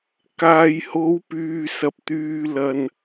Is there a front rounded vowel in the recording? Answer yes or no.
yes